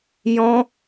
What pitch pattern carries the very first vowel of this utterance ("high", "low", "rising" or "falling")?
high